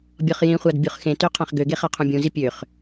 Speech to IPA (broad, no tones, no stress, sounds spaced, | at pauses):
bʲ ɔ χ j ĩ χʷ a d bʲ u χ x ẽ t ø qʰ ã χ ɡ ø ɡ e χ a qʰ ũ bʲ ũ z i pʲ ø χ